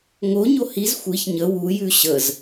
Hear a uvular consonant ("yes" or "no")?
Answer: no